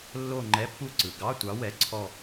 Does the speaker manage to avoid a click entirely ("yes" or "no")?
no